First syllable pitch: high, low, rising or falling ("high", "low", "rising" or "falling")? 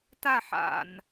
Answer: falling